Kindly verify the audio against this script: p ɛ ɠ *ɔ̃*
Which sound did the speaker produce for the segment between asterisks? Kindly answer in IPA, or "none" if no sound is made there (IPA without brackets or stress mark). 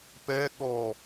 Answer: ɔ